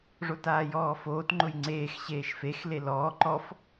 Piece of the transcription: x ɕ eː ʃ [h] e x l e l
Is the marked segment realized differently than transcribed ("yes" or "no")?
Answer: yes